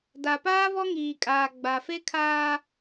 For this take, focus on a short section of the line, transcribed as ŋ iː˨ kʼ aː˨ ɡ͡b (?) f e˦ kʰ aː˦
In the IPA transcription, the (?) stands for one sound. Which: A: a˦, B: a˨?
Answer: B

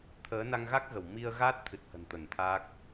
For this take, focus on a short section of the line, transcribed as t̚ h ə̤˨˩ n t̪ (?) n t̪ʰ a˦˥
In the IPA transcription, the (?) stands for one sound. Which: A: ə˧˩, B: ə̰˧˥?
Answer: A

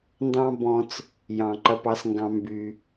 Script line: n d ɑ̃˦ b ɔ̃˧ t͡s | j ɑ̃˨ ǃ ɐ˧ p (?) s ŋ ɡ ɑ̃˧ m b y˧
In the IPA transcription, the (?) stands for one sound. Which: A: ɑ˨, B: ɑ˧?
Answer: B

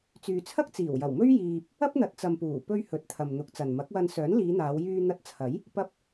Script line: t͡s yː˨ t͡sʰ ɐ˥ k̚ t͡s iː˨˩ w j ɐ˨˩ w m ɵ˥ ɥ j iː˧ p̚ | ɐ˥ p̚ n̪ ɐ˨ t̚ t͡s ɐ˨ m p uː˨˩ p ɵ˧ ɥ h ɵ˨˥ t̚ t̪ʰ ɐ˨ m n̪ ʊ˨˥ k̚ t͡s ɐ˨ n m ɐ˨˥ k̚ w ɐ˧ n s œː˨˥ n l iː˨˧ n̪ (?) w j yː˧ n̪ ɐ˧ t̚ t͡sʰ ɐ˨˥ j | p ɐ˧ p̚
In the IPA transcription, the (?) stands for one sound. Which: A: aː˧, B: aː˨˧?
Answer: B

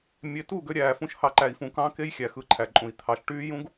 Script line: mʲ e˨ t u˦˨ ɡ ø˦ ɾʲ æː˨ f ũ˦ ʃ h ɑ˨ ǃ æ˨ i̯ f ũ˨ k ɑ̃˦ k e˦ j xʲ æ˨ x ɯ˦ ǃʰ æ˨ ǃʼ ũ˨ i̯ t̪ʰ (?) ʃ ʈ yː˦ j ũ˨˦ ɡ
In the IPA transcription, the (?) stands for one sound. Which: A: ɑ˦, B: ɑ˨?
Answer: B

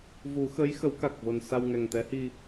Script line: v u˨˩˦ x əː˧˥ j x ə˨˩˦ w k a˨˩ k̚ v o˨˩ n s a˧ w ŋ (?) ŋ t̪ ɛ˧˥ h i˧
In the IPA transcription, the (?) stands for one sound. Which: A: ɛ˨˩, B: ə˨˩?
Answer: A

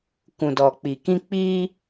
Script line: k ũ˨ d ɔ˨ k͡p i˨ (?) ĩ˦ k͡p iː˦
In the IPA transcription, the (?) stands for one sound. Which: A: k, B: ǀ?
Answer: A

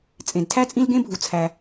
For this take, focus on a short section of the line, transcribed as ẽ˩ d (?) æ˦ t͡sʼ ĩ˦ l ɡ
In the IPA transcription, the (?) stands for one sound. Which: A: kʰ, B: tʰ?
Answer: B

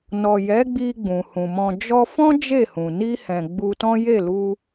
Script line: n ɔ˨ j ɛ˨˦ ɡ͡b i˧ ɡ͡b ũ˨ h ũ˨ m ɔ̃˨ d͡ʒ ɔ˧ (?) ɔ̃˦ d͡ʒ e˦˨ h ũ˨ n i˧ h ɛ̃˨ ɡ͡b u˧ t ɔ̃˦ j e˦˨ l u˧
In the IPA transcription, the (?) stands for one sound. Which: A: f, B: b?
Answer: A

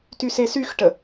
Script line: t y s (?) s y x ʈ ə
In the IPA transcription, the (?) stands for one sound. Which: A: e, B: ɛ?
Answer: A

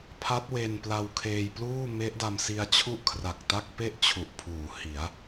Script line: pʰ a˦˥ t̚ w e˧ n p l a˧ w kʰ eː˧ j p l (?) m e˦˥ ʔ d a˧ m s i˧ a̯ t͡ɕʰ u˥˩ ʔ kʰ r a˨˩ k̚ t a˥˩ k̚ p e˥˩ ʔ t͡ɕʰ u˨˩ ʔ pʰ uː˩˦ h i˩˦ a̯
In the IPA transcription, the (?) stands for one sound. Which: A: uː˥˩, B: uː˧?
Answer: A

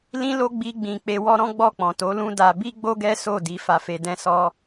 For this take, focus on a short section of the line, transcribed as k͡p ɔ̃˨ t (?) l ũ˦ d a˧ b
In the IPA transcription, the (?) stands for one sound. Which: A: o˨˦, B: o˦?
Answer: A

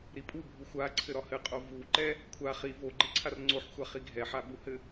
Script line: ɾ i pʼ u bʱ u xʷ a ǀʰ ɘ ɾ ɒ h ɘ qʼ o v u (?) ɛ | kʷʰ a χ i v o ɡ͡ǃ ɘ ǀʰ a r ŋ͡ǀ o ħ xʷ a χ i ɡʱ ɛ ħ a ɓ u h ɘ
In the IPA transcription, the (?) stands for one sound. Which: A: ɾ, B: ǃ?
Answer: B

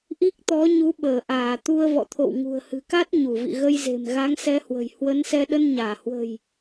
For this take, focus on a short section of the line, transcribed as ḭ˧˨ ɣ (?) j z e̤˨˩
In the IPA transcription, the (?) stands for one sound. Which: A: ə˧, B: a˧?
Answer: A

